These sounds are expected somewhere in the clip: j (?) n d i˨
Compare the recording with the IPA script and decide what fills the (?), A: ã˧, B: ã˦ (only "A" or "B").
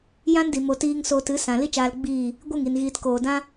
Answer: B